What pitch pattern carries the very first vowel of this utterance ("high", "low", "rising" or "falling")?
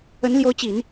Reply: rising